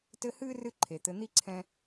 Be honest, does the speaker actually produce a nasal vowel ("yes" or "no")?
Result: yes